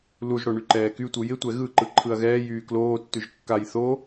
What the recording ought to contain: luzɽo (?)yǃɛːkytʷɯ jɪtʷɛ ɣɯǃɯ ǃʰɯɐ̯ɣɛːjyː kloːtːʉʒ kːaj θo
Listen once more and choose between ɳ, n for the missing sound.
ɳ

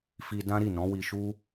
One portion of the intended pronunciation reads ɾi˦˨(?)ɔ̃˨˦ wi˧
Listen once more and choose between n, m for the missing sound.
n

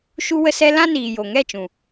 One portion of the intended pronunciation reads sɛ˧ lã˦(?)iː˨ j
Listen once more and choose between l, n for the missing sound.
n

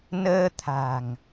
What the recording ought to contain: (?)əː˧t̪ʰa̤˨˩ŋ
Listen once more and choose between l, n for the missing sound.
n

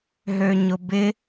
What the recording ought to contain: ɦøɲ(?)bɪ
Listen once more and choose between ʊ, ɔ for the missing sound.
ʊ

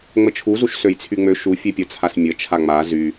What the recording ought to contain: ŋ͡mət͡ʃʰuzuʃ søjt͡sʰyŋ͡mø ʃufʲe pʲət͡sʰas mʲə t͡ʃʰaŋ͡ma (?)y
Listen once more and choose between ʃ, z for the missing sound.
z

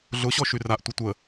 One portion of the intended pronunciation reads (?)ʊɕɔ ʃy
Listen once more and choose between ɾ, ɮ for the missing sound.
ɮ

